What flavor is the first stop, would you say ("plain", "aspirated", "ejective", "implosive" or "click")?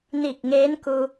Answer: plain